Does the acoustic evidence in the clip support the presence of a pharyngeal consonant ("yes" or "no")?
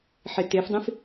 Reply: yes